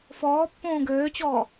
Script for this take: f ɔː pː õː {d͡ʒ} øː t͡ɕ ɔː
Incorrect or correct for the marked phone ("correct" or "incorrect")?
incorrect